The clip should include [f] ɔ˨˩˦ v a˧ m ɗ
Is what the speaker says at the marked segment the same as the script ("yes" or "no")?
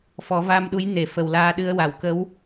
yes